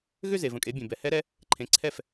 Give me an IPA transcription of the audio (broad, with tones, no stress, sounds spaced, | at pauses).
ɣ ʏ˥˧ z e˩ v ə̃˩ kʼ e˩˧ bʲ ẽ˩ b ɛ˩˧ h ɛ˧˥ ɾ ɛ˧˥ | ǃʰ ẽ˩˧ ǀʰ ɛ˥˩ f